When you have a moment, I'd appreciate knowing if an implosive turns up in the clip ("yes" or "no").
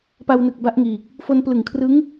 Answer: no